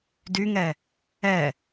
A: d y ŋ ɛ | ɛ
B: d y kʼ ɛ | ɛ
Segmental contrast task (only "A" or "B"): A